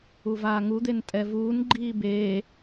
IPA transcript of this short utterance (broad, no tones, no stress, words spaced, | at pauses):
uvaːŋud̪en tʼɛvuːn ɡ͡ǃiːbeː